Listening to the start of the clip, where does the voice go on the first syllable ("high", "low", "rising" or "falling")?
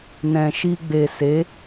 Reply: low